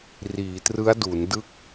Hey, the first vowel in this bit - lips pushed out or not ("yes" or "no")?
no